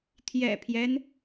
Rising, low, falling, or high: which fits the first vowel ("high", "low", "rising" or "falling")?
low